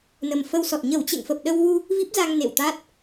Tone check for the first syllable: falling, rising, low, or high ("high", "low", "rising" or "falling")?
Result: low